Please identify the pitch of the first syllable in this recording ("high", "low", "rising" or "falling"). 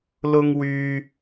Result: high